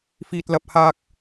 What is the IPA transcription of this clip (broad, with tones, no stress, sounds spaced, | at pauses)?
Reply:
f iː˨ t̚ l ɐ˨ p̚ h aː˧ k̚